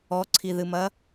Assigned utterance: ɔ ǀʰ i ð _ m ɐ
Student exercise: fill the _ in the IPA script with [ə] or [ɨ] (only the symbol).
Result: ɨ